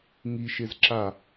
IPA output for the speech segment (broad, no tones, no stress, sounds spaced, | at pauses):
ŋ i ʃ e z ǁ a